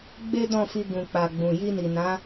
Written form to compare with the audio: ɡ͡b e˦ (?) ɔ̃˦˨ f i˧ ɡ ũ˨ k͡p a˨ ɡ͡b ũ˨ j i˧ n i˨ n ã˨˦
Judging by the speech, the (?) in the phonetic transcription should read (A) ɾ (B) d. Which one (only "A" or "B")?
B